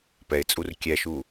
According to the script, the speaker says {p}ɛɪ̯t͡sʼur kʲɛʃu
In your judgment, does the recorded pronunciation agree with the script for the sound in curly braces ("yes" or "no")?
yes